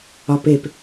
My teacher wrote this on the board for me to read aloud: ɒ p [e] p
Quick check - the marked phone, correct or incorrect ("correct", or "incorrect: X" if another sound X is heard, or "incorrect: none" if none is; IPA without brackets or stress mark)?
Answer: correct